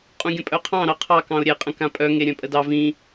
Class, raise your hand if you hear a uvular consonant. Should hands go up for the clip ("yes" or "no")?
yes